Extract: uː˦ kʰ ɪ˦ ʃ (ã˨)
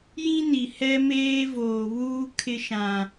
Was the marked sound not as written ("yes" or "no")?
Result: no